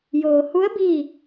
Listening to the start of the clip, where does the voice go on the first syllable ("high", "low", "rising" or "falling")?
low